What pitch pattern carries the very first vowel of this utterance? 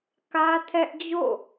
high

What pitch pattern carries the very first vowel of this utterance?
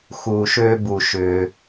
low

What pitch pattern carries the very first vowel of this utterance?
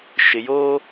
low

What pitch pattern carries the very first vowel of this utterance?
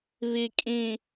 low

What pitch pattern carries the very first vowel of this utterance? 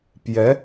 rising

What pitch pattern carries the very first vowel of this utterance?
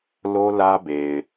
high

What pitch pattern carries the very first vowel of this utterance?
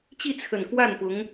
falling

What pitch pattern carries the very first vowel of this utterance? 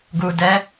low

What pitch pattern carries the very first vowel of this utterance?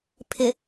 low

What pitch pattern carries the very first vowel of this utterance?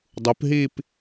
rising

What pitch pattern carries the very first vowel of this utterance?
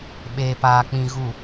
low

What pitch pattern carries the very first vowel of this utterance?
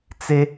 high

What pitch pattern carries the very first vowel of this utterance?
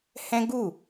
high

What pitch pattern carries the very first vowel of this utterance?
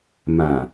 low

